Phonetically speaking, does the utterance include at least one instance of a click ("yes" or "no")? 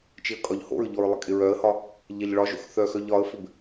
no